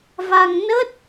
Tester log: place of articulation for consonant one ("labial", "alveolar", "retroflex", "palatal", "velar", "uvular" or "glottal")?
labial